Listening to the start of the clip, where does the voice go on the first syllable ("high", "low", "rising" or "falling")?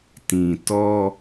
low